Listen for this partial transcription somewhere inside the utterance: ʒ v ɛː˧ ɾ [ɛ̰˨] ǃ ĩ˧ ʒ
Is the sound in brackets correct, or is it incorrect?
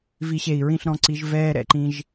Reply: correct